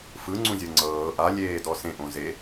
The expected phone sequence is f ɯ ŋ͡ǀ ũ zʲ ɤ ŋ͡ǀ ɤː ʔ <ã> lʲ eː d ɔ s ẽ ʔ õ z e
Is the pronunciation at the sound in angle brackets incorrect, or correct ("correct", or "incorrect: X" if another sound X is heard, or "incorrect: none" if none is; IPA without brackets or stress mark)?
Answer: incorrect: a